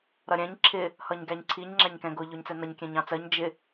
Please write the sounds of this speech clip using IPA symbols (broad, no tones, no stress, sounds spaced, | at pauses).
ɾ ʌ ɾʲ ɛ̃ ɲ ǁʰ ɪ | h ʌ ɲ ɡ æ ɲ ǀʰ i ɲ ŋ͡ǁ æ ɲ k ɛ̃ ɡ ʊ ʎ ʊ ɲ t͡s ɛ n ʌ ɲ kʲ ɛ̃ ɲ ɑ̃ t͡s ɜ ɲ d͡ʒ ɪ